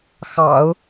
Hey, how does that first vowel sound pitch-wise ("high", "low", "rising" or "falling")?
low